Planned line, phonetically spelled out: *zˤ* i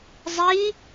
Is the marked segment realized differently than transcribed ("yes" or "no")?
no